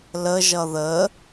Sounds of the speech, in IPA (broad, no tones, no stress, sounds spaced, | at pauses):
l ə ʒ ʌ ð ə